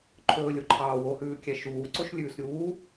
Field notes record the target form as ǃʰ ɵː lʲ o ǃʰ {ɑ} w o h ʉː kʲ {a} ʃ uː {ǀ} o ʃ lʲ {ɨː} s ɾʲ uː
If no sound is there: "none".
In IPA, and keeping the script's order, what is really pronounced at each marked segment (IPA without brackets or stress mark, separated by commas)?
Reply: ɑː, æ, ǀ, ʉː